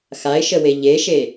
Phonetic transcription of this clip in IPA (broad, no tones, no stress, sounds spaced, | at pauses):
x a ɪ̯ ʃ ə w e ʎ e ʃ e